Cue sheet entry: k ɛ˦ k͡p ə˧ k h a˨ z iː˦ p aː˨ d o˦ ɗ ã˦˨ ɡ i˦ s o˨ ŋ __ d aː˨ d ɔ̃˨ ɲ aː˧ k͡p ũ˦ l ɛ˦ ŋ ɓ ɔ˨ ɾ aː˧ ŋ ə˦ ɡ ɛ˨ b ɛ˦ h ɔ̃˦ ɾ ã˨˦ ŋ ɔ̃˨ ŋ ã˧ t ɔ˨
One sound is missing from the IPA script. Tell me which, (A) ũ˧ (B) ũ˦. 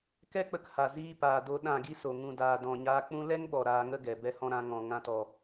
A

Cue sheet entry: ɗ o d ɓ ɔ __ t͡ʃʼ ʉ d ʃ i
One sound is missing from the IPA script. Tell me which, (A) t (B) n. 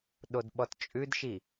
A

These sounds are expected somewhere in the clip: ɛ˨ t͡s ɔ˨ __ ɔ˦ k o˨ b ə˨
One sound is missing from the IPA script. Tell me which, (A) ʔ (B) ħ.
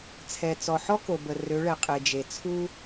B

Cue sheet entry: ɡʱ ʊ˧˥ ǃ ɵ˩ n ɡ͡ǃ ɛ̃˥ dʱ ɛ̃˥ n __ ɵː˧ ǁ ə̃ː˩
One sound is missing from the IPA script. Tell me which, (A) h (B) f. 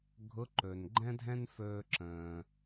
B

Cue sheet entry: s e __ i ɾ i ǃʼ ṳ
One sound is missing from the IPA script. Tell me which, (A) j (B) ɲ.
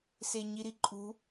B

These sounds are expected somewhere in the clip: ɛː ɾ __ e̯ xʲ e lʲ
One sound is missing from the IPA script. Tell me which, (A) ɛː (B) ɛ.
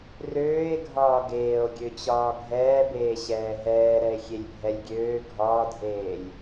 B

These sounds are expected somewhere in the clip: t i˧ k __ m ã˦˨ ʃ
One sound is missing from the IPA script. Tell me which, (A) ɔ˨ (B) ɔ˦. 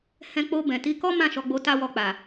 B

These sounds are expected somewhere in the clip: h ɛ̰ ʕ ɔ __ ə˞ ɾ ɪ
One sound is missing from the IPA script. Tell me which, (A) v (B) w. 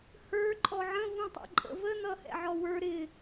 B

